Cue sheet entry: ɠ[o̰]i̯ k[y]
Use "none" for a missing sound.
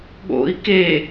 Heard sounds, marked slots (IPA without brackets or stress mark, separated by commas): o̰, e